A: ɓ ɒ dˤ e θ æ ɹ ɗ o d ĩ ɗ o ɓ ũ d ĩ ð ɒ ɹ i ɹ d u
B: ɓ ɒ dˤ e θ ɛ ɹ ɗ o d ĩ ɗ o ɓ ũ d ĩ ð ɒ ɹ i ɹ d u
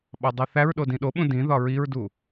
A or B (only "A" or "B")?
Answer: A